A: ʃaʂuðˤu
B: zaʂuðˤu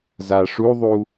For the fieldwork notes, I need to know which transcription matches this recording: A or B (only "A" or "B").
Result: B